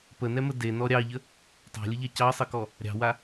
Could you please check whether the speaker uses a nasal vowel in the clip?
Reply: no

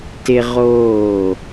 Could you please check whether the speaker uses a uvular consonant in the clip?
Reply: yes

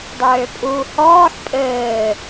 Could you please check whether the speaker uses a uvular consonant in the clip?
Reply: no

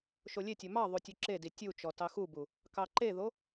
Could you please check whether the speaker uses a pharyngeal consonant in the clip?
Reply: no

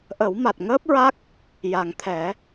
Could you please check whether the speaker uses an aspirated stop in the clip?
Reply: yes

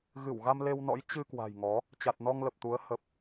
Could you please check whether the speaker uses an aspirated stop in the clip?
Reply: no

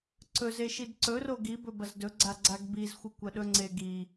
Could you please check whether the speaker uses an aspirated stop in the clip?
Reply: no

